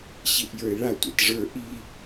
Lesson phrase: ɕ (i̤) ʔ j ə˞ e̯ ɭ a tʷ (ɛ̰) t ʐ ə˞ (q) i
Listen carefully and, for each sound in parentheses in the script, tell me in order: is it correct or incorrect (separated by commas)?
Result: incorrect, correct, incorrect